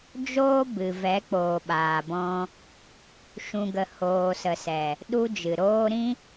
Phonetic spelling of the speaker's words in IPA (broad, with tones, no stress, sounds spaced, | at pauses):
d͡ʒ oː˦ b ɨ˨ v ɛ˨˦ k͡p oː˨ ɓ aː˨ b ɔ̃˧ | ʃ ũ˨ ɡ ə˨ h oː˨ s ə˨ s ɛ˨ | ɗ u˧ d͡ʒ ɨ˨ ɾ oː˦ ɾ ĩ˦